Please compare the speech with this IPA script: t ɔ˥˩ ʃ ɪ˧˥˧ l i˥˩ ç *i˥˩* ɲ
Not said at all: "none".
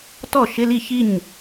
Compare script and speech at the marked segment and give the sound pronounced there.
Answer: i˥˩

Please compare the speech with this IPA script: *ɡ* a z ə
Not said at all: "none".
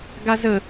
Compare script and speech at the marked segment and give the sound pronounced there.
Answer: ɡ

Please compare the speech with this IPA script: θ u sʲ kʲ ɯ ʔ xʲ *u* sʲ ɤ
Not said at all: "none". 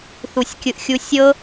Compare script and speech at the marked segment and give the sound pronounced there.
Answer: u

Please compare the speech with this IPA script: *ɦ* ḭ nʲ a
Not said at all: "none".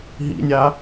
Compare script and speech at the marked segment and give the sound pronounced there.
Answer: ɦ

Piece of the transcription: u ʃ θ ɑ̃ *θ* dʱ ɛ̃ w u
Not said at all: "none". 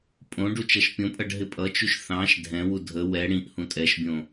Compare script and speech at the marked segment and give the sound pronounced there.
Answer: ʃ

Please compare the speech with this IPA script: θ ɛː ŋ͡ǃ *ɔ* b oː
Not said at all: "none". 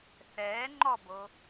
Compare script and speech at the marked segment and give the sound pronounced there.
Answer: ɔ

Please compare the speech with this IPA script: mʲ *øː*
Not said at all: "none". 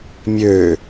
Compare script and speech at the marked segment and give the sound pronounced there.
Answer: øː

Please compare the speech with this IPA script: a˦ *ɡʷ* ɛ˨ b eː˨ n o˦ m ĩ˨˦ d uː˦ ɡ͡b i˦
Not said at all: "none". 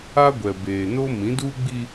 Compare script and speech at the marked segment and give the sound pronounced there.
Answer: ɡʷ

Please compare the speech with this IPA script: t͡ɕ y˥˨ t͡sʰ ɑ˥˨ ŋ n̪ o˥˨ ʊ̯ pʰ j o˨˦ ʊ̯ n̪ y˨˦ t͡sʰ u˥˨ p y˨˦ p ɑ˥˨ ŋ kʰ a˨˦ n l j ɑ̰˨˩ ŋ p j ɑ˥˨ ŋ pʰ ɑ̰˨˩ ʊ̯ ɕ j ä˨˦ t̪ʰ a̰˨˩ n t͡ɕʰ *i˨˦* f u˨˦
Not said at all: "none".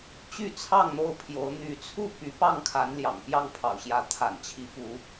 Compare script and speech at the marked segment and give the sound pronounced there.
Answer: i˨˦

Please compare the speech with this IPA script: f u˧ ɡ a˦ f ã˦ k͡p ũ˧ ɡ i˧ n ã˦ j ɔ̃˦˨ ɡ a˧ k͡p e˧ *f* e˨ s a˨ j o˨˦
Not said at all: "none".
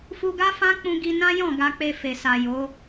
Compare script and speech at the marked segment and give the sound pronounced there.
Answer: f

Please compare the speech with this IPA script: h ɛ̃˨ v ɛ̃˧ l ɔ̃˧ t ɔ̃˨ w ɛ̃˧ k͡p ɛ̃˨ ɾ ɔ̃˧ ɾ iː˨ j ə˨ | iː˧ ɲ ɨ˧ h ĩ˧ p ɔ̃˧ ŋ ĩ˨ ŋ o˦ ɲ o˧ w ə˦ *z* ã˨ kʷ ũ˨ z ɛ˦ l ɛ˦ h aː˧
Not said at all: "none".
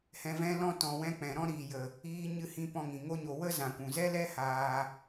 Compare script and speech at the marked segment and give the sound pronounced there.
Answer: z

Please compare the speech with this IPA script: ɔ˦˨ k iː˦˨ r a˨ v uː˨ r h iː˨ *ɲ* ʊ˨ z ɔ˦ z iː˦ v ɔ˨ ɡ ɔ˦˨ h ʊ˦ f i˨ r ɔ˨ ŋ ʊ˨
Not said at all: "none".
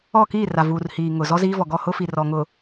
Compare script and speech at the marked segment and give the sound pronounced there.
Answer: ŋ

